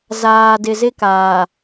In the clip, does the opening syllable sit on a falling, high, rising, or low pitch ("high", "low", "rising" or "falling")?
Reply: low